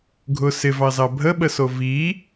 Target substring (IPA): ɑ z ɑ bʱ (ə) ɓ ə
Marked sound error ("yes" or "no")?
no